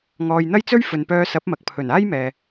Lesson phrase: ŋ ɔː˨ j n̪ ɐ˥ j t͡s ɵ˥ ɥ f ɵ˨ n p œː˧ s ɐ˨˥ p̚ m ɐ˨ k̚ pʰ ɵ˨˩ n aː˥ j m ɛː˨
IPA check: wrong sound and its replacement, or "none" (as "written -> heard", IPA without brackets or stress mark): none